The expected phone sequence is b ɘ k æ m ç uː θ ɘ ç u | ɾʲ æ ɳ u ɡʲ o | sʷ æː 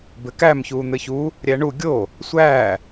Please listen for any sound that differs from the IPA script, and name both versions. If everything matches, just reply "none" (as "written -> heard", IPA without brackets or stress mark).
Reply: θ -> n̪